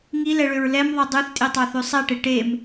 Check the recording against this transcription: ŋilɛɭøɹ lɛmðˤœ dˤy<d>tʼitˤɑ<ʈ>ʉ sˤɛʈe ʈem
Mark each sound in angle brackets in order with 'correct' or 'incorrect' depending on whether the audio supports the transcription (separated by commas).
incorrect, incorrect